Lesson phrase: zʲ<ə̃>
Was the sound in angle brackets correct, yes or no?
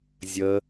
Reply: no